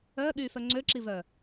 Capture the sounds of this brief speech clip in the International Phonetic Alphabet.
œ ɠ yː f œ ŋ͡ǀ ø ǁ i v œː

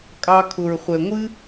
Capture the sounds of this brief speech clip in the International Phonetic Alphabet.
kʼ ɑ˧ kʰ ʊ˨ ɹ χʷ ɛ˨ ŋʷ ɨ˦

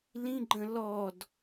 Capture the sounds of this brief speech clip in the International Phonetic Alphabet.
l ĩ ɡ͡ǃ ə̃ l ɔ d

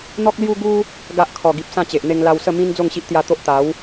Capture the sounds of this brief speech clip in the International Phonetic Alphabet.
n̪ ɔ˦ k̚ l j u˦ ɡ u˦ | ɡ a˦ ʔ kʰ ɔ˨˩ ɡ i˨ p̚ s ã˥˧ t͡ɕ e˨ ʔ n̪ e˧ ŋ l a˧ w s ə˥˧ m ĩ˦ n d͡z o˥˧ ŋ ɕ i˦ ʔ t̪ j a˧ t̪ o˦ ʔ t̪ a˨˦ w

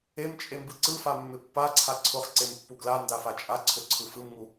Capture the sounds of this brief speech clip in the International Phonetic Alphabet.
e m t͡ʃʼ e m b ɯ ǀ ɯ f a mː ɪ pː a ǀʰ a ǀʰ ʊ χ ǀ e m pː u ɡ l a n d a f a t͡ʃʼ a ǀʰ ʊ ǀʰ ɯ f ɯ m ŋ u

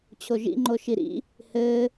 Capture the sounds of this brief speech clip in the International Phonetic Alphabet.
t͡ɕʰ o ʒ ḭ ŋ͡ǃ o ʃ i ɾ ḭ | h ɘː

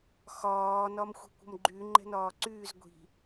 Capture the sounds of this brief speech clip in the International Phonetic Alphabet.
x ɒː n ɒ m xʷ i̤ kʷ ə̤ m ɡ͡ǃ y ŋ͡ǃ ɛ̤ n ɒː ǀ yː z ɡʷ i̤

